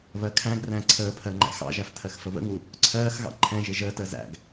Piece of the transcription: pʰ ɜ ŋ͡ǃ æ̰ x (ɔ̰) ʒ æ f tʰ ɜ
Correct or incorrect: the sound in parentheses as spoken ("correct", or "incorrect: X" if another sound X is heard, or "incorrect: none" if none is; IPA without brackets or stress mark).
incorrect: ɑ̰